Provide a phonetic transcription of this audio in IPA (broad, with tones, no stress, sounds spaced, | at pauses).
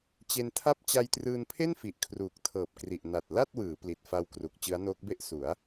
t͡ɕ e˧ n tʰ a˥˩ p̚ t͡ɕ a˧ j t r ɯː˧ n pʰ e˥˩ n f i˨˩ ʔ kʰ r uː˨˩ k̚ tʰ ɤː˨˩ p̚ k r i˨˩ ʔ n a˨˩ t̚ l a˥˩ t̚ w ɯː˩˦ p l i˨˩ t̚ f a˧ w k r u˨˩ k̚ t͡ɕ ɯ˦˥ a̯ n oː˦˥ k̚ b e˥˩ ʔ s u˩˦ a̯